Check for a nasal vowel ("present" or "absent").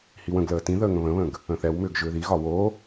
present